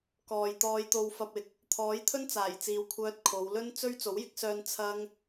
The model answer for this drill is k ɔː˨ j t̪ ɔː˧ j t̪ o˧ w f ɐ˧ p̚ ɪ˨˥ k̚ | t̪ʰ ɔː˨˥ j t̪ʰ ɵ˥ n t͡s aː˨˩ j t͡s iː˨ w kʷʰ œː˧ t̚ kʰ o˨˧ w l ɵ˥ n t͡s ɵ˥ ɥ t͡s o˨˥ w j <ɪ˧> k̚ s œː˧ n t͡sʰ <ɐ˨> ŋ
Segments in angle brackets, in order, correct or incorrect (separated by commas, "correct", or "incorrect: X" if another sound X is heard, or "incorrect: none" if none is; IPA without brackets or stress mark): incorrect: ɪ˨˥, incorrect: ɐ˥